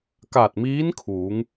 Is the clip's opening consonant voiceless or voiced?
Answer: voiceless